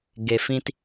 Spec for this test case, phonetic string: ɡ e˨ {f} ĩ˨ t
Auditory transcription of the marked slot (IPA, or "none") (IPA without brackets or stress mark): f